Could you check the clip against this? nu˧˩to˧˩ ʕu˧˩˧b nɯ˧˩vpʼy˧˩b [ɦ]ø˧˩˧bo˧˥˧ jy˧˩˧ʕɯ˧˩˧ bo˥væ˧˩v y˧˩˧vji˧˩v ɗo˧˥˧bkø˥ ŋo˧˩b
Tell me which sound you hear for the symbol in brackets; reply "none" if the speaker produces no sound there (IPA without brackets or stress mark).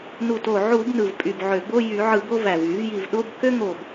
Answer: ʕ